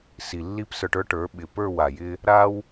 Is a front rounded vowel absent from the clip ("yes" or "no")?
yes